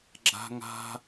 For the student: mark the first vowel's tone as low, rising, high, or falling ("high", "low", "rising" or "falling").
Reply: high